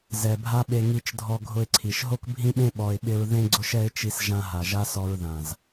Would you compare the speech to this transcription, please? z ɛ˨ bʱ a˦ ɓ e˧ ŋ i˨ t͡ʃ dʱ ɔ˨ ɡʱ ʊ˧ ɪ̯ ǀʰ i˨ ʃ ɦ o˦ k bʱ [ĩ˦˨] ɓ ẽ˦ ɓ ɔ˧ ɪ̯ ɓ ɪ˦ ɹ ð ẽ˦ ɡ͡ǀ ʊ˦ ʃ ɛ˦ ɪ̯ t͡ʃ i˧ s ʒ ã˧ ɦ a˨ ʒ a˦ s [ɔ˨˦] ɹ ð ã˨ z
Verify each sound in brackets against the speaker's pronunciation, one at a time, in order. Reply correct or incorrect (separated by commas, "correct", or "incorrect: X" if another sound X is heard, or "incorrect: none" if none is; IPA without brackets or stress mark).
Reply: incorrect: ĩ˦, incorrect: ɔ˧